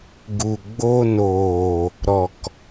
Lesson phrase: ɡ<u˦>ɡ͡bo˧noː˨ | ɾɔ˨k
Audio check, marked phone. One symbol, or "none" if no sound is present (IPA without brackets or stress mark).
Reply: u˨